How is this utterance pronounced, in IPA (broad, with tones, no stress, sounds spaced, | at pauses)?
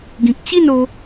ɡ ĩ˨ k̚ t͡ɕ i˥˧ n o˧